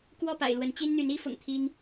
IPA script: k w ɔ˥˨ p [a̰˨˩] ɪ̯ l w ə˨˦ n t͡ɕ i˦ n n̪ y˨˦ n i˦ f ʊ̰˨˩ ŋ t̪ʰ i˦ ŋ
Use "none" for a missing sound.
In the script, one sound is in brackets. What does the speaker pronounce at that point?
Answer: a̰˨˩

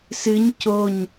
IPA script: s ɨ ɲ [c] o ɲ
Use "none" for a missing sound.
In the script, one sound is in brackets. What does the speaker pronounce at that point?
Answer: c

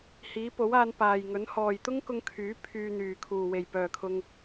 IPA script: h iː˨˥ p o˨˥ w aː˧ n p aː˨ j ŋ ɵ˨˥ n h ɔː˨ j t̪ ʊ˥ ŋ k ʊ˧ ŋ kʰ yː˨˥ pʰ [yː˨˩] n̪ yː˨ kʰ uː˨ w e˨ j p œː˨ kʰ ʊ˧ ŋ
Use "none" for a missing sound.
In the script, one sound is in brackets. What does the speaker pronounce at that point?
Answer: yː˧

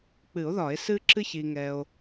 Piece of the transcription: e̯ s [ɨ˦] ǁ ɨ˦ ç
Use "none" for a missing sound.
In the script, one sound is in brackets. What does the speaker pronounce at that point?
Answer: ɨ˦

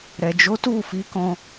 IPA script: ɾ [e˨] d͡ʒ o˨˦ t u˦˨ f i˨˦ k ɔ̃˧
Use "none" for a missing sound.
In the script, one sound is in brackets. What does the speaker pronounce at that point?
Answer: ɛ˨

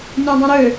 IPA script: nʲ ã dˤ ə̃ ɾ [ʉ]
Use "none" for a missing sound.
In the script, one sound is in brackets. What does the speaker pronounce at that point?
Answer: ø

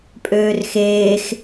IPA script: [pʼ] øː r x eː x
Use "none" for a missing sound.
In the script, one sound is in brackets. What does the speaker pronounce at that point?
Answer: pʼ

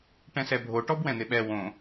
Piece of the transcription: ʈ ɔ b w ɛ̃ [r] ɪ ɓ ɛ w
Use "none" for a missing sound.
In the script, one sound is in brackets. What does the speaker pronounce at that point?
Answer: n̪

